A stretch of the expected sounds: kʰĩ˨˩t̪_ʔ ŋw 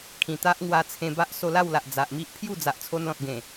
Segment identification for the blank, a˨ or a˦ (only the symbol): a˦